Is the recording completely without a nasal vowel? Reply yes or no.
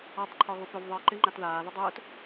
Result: yes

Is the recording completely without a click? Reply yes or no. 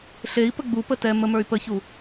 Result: yes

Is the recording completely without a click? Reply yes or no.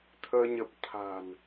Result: yes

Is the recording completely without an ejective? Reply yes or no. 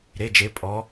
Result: no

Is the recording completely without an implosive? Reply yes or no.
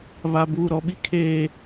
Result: no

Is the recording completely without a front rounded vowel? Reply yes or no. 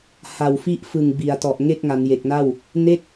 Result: yes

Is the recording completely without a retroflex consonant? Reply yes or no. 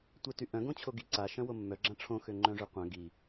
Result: no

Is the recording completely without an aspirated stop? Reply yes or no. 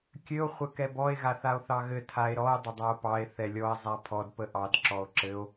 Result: no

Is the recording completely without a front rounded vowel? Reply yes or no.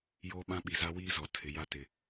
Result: yes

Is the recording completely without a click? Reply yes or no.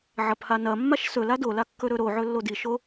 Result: yes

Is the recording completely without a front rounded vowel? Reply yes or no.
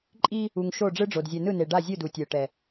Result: yes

